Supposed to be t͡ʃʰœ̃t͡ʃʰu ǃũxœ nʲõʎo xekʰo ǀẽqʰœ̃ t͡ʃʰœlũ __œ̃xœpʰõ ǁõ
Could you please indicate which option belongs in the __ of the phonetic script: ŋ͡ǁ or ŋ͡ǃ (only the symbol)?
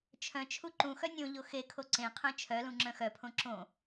ŋ͡ǁ